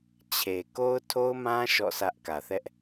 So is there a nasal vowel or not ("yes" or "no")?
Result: yes